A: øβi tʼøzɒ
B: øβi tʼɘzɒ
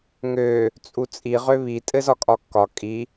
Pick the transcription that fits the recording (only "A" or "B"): B